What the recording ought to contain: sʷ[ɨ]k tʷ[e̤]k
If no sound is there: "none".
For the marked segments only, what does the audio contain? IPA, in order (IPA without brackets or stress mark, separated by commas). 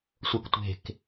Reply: ə, e̤